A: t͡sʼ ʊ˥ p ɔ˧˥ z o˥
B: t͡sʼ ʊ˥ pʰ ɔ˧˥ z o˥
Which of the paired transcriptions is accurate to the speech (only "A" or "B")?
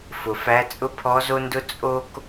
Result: B